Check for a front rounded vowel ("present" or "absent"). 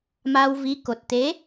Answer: absent